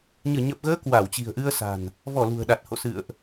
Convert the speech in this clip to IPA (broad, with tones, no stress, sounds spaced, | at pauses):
ɲ ɨ˧˩ ɲ ə˨˩ p̚ ɣ əː˨˦ k w a˧˩ w t͡ɕ i̤˨˩ ə̯ ʔ ɨ˧ ə̯ s a̤˨˩ n | v ɔ˧˩ l ṳ˨˩ ə̯ ɗ a˨˩ t̚ h o̰˧˨ s ɨ̰˧˨ ə̯ ʔ